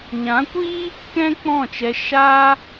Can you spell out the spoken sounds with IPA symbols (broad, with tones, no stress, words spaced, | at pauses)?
ɲã˨˦kʷiː˦ | kɛ̃˦k͡pɔ̃˦˨t͡ʃɛ˧ ʃaː˦